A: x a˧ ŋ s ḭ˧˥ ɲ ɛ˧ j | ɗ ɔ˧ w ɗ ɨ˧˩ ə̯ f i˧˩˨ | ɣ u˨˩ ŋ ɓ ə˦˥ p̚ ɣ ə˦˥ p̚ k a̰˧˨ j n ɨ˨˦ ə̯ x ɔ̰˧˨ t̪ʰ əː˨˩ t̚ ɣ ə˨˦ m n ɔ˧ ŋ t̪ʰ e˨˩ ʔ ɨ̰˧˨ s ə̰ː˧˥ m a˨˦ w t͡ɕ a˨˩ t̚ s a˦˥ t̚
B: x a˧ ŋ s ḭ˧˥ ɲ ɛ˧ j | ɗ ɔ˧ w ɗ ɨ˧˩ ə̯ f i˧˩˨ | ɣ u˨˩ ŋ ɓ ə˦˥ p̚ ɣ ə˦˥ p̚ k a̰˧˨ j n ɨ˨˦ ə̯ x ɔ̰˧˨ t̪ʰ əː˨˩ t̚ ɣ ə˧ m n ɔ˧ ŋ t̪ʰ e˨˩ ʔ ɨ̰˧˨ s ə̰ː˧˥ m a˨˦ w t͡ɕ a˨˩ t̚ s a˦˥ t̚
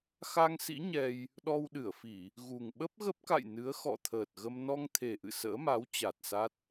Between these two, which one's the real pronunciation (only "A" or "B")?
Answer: B